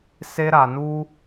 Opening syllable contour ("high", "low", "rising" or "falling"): high